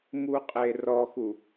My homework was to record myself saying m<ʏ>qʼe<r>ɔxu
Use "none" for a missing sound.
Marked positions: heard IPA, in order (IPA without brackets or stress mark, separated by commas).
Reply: u, r